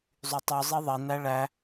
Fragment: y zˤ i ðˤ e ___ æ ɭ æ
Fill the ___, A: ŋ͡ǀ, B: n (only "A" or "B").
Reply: B